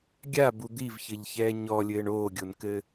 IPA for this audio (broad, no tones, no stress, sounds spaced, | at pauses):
ɡʲ a b u d̪ i v ç ɘ ʎ ç ɛː ɲ ɔ lʲ ɘː ɳ oː ɡʲ o n k ɘ